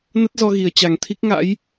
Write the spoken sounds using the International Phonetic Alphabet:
n ə˦˥ t̚ z ɔ˧ ɣ i˨˩ ə̯ t͡ɕ a˨˩ ŋ t̪ʰ i˦˥ k̚ ŋ a̰˧˥ j

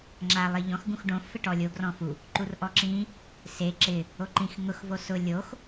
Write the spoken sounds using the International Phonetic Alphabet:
ŋ͡ǁ a lˠ i ʎ ɔ̃ x ɡ ũ x ɖ õ f ɪ ʈ ɔ lʲ o ɡ r ɔ̃ f u | ǃ u r ʔ ɔ ǁ ĩ | s e ǁ ɪ | o ǃ ĩ x ŋ ʊ x v o s ʊ lʲ o x

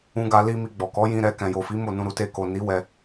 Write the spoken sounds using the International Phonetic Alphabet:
ũ˧ ɡ a˧ l i˧ m i˧ ɡ͡b ɔ˨ k ɔ˨˦ j ĩ˧ ɾ ɛ˧ k ɛ̃˨ j o˨ f i˨˦ m o˦˨ n ũ˧ ɾ u˧ t e˧ k o˨ n i˨˦ w ɛ˧

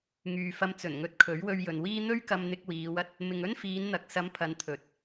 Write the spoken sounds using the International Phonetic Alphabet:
ŋ yː˨ f ɐ˧ m t͡s ɵ˨˩ n ŋ ɵ˧ t̚ kʰ ɵ˨˥ ɥ w ɵ˧ ɥ j ɵ˨ n w iː˥ n̪ ɵ˥ ɥ k ɐ˧ m n̪ ɪ˧ k̚ w iː˨˧ w ɐ˥ t̚ | m ɪ˨ ŋ ɵ˥ n f iː˨˧ n n̪ ɐ˨ k̚ s ɐ˨˧ m pʰ ɐ˨ n t̪ʰ ɵ˨˥ t̚

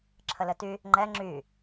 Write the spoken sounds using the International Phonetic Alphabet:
ǁʰ ə l ɘ t y | ŋ͡ǃ ɛ ŋ͡ǁ y

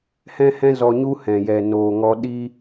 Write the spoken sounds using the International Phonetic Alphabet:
h ɛ̃˧ h ɛ̃˧ z ɔ˧ ɲ u˦ h ɛ̃˨ j ɛ˨ n oː˨ ŋ ɔ˧ ɗ i˦

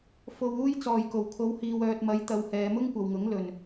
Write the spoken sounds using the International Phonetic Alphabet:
f o˧ w uː˥ j t͡s ɔː˨ j k o˨˩ w kʰ o˨˧ w h iː˨ w œː˨ t̚ m ɐ˨˧ j t̪ ɐ˨ w h ɛː˨ m ʊ˥ ŋ kʷ ɐ˨ w ŋ ʊ˨˥ ŋ l ɵ˨ n

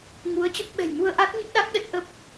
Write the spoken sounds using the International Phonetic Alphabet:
ŋ u˨˦ ə̯ t͡ɕ ə˦˥ p̚ ɓ ɛ̤˨˩ j m u˧ ə̯ ʔ a˦˥ t̚ ɲ ə˦˥ p̚ ɗ a˦˥ k̚ ɗ ə˦˥ t̚ ʔ ə˦˥ p̚

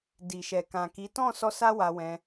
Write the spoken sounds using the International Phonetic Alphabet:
d i˨ ʃ ɛ˨ k ã˨ k i˨˦ t ɔ̃˦˨ s ɔ˧ s a˦ w a˧ w ɛ̃˧

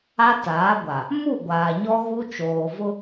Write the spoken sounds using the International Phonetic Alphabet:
a˦ t aː˨˦ ɡʷ a˨ | m u˦˨ ɡʷ aː˨ ɲ ɔ˦ ɣ u˦ t͡ʃ oː˨ v ʊ˦

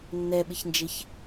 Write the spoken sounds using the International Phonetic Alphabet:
nː ɛ ɓ ɪ ç n d͡ʒ ɪ ç

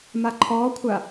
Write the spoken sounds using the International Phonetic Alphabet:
m a ǃʰ ɔː kʷʰ a

